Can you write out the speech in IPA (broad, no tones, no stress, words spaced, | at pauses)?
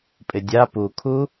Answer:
pʼɪdʲa pukʰu